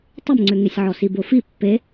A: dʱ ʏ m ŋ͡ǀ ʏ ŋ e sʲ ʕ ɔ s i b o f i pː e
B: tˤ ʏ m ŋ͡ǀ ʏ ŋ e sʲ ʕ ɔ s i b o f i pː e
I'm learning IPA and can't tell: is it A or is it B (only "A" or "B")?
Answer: B